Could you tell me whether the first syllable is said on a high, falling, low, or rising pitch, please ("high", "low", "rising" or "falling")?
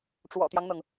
low